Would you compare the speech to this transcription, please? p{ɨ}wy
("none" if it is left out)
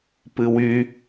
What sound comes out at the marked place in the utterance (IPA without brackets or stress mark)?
ɨ